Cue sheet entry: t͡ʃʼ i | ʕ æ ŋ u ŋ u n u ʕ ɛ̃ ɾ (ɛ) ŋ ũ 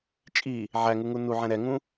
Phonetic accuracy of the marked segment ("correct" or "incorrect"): correct